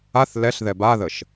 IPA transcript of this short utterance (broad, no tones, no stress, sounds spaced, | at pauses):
a θ l ɛ ɬ ð ɛ b a ð ə ʃ